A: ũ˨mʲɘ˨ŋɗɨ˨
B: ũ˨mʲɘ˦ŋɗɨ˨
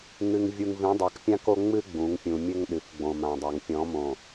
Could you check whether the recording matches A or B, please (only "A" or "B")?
B